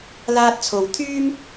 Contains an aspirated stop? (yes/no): yes